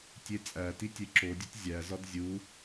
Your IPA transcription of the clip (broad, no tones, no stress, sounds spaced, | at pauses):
tʲ e t͡sʼ æ t i tʲ e ǁ o dʲ u t zʲ æ z ɒ d zʲ u